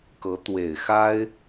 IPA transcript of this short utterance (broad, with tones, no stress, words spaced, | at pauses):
kɤ˧˥t̪we˨˩ɪ̯ xa˥ɪ̯